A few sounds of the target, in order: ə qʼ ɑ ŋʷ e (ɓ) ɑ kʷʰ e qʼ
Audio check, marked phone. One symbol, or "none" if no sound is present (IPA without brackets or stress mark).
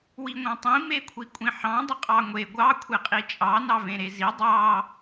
ɡʷ